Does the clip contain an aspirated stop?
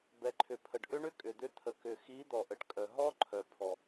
yes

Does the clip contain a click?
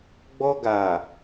no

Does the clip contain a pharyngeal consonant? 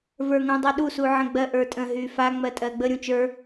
yes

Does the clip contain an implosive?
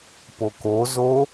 no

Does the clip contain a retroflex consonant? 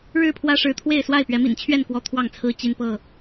yes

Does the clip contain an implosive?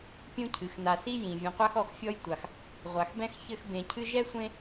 no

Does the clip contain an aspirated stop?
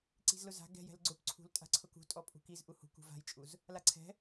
yes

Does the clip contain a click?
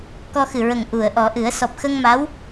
no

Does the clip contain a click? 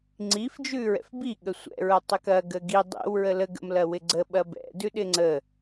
yes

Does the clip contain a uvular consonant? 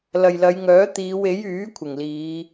no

